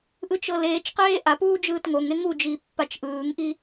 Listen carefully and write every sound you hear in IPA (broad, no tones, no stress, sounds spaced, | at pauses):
ʔ ɯ t͡ʃ ɤ l eː t͡ʃ q eː ʔ a p uː d͡ʒ ɯː t ŋ o ŋ e ŋ u d͡ʒ iː pː a t͡ʃ ʔ ɯː ŋ ʔ i